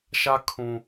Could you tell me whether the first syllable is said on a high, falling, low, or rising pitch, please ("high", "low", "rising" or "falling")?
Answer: high